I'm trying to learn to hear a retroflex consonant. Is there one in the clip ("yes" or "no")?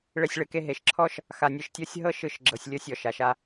yes